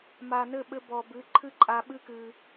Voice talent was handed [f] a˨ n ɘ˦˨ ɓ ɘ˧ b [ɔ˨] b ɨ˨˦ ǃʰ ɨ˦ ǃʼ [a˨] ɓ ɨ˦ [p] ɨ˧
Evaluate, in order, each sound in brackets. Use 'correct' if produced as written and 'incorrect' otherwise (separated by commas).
incorrect, correct, incorrect, incorrect